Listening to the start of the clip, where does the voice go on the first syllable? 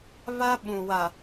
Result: high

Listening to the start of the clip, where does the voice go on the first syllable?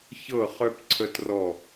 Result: falling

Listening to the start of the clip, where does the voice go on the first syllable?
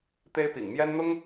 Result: high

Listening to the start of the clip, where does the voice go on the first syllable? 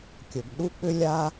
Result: low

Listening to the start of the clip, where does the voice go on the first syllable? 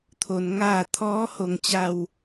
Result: low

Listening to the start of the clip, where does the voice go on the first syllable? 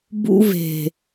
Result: high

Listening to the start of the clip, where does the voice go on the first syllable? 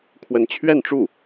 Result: rising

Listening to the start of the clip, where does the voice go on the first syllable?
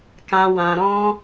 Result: low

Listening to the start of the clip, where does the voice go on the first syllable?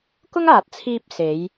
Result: high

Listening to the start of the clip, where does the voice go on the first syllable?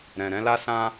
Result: low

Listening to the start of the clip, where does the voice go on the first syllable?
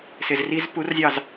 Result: low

